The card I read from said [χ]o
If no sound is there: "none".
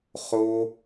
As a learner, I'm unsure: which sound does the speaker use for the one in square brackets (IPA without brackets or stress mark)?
χ